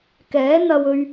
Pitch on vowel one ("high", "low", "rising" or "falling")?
rising